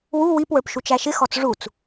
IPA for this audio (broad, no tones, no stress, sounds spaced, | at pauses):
w u w i p w ə˞ p ʃ u t͡ʃ æ ʃ ɪ x ɔ t͡s ʐ u t͡s